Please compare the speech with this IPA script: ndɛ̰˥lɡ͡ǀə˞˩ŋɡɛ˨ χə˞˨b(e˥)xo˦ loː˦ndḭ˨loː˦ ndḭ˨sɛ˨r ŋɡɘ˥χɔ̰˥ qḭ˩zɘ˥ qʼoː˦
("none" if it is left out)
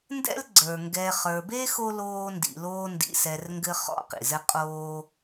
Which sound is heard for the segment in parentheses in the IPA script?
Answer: e˥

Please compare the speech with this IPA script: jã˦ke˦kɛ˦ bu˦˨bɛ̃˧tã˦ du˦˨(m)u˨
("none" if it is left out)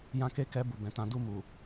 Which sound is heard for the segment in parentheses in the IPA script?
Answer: m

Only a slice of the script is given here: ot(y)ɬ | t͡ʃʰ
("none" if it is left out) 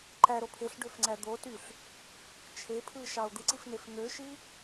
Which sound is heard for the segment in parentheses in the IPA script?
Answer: y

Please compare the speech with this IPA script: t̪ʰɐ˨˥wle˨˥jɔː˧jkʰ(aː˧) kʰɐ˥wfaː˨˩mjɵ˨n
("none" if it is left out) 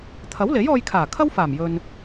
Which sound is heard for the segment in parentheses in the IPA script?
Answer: aː˨˩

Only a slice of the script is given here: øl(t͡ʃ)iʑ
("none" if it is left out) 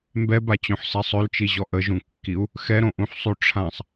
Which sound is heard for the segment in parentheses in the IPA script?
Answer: t͡ʃ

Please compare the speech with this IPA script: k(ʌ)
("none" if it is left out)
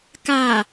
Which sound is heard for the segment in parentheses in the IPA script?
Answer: a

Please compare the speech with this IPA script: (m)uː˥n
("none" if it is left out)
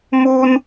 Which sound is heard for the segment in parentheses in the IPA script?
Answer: m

